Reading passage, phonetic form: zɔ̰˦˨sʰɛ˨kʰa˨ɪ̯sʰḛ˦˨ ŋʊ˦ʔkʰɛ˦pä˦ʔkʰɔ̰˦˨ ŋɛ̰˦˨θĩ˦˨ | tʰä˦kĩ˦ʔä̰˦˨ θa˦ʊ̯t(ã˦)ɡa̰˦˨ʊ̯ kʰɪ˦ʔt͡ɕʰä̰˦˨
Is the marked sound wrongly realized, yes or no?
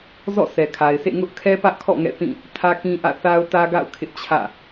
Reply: yes